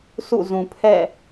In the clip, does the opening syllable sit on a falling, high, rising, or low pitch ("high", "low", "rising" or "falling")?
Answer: falling